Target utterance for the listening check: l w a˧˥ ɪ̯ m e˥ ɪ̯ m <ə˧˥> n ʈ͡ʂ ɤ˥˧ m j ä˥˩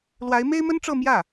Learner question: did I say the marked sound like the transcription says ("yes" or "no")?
no